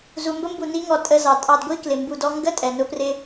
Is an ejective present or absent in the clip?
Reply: present